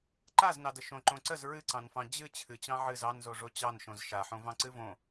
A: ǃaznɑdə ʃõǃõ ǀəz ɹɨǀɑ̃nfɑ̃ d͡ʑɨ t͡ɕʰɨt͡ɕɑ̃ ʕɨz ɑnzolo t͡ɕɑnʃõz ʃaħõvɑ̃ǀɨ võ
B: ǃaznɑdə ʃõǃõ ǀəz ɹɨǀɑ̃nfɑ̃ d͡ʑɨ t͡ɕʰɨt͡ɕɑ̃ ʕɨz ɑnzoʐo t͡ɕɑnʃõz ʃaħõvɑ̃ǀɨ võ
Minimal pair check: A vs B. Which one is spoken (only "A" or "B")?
B